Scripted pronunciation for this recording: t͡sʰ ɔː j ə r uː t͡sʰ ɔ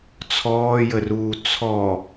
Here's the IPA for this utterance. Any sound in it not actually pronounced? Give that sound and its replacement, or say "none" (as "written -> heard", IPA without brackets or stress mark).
none